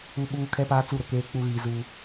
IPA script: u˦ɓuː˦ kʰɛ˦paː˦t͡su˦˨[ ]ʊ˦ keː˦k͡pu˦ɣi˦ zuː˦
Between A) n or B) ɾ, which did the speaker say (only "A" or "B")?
B